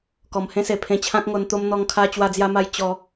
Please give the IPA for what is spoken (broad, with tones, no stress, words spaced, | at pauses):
kɔ˨˩mhẽ˦se˨˩ pʰẽ˧t͡ɕʰã˦k̚ ŋo˧nt̪o˦m n̪ɔ˦ŋkʰa˦ t͡ɕwa˥˧d͡zja˦ma˦j t͡ɕɔ˧